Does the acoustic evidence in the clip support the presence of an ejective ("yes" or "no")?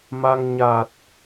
no